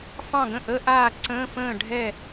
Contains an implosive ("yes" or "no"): no